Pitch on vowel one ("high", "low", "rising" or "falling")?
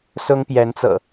high